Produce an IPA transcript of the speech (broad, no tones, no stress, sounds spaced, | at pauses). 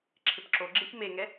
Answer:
ǁʰ ɪ p ǁ o ɡ͡ǁ e ç m e ŋ ɛ